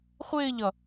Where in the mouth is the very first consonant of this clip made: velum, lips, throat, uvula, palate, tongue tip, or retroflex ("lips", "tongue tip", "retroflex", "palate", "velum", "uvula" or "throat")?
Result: uvula